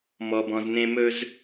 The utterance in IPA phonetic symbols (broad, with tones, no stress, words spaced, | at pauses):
mɔ˨bɔ̃˨znẽ˧mɵ˧z